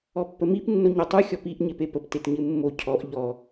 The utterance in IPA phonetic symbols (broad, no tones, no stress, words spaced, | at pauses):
ɔpːəmip nːoɲotˤu xʲɔpiʔ ɲepepəp tetɲɨmːo cʰɔʔ ʎɔ